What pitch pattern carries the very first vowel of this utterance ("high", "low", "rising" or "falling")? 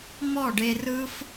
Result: falling